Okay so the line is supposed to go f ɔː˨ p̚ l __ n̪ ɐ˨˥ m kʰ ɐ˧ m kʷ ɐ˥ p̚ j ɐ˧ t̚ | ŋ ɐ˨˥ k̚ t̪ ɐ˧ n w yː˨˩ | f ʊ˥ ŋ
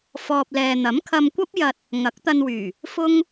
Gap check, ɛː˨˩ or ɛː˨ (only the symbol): ɛː˨